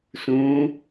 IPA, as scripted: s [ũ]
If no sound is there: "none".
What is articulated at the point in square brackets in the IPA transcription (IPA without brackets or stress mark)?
ũ